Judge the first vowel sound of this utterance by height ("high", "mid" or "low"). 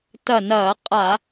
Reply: low